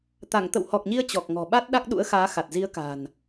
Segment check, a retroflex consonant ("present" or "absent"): absent